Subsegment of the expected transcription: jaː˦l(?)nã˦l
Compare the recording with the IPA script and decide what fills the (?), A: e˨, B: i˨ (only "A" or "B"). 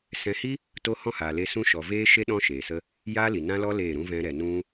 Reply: B